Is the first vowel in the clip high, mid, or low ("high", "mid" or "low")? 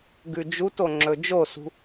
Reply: high